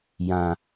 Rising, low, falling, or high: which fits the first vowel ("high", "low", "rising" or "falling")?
low